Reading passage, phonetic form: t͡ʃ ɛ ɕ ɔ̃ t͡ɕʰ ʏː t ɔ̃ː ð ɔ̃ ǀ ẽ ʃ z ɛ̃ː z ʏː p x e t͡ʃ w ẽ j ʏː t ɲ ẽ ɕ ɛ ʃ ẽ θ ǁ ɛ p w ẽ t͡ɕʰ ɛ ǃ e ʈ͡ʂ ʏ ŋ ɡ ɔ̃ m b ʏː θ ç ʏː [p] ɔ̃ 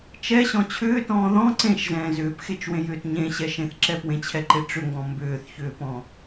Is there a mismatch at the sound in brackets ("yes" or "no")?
no